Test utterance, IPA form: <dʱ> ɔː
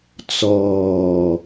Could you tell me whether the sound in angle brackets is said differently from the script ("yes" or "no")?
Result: yes